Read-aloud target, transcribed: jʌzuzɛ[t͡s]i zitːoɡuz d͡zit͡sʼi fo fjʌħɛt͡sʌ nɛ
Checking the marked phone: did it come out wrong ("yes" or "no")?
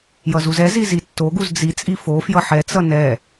yes